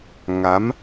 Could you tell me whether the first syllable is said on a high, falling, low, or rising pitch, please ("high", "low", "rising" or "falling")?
rising